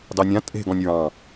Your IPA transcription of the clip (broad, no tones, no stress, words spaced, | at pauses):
dɑnʲã tʼe̤ ɡɔ̃nʲɹɑ̃